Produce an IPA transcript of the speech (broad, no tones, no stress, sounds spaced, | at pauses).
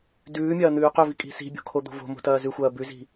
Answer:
d ʉː mʲ ɐː n̪ ʉː q ɵ v i kʼ i̤ s i̤ bʲ o̤ kʰ o d̪ o̤ v o̤ m o̤ t ɐː z ʉ xʷ ɐː b ʉ z i̤